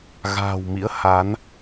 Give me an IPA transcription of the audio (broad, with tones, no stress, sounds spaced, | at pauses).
ɣ a̤ː˨˩ w m ḭ˧˥ ə̯ h a˨˦ n